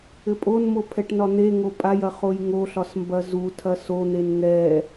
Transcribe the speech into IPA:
ɘpʼonmo pʰɛʈnɒn̪eŋo pʼajɐ χojŋoɬɒs mbɐzutʰɐ son̪en ŋɛ

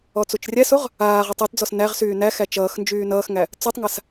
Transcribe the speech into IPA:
ɔt͡sut͡ʃrʲæsoʁ | aːʁotˤ otd͡zɔs næʁ syːnæxæ t͡ʃʌːxnd͡ʒyː nʌːxŋæ | t͡sutˤŋas

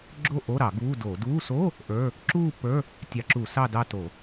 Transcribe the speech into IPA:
ɡ͡ǁo˥˧ʔo˧˥˧ɾɑ˧˩˧ ɡuː˧˥˧doː˧˩˧ duː˧˥˧ so˧˥˧ | ʔə˞˧˥˧ | ǁuː˥˧ pːə˞˧˥˧ | tʲɑ˧˩˧ǁu˧˩˧ sɑ˥˧dɑ˥˧to˧˩˧

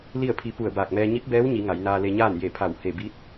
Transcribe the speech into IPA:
li˥˨ə̯pʰi˧ pu˧˩ə̯baː˧˩k̚mɛː˧ ɲi˧˥p̚bɛː˧˥wɲi˩˧ ŋa˩˧jnaː˧le˧ɲaː˥˨n je˧˩pʰa˧˩w he˧˩ bi˧˥t̚

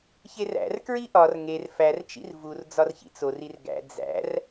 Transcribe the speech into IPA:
çeræ̰r kɹiʔɒr ŋer fært͡ʃḭr vur d͡zɒrçḭt͡sorir ɡæ̰ d͡zæ̰r

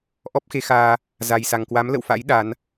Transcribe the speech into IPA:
ʔɔ˦˥p̚xe˨˦xaː˧ | za˨˩jsa˨˩ŋkwa˨˦m lə̰˧˨wfa̰˧˥j ɗa˨˦n

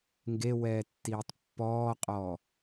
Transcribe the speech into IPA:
ŋɡewɛːtːiːtˤ pːɔːqʼɔː

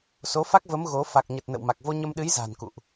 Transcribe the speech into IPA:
so˨˦fa˦˥k̚və˨˦m ɣo˨˦ fa˨˩k̚ɲə˨˩t̚ nə̰˧˨wma˨˩k̚vo˧ ɲə˧mɗɨ˨˦jza̤ː˨˩n kṵ˧˨ʔ

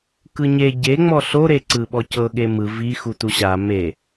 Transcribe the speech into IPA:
kɯɲe ɟeŋ͡mɔ ɬoɾe ǀɯɓɔcɤ ɠemɯ vi xutuɕa me

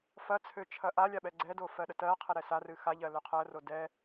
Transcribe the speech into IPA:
fɐt͡sʰø t͡ʃʰɐʔalʲa ɓɛɡ͡ǀɛdo fɜɗətɜqʰɛ ɾɛsarɨ xaʎɜ løqʰɜro dɛ

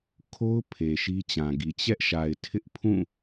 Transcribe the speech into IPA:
kʰo˦ʊ̯ pʰe˨ʃi˦t͡ɕã˨ɡi˨ t͡ɕɛ˦ʔʃa˨ɪ̯ tʰɪ˦ʔpʰũ˦˨

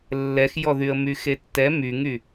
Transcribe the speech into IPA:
lːɛxjɔðyə̯ myxetːɛ myŋy

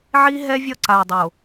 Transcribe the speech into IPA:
ʕi˦ɦɛ˦vʲʌ˦˨ ǀa˨ɐ̯dˤo˨

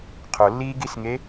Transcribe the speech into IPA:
qʰolːiːɡisŋe

